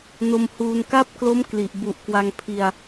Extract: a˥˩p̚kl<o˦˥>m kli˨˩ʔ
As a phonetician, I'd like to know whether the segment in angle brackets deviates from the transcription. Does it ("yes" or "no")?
no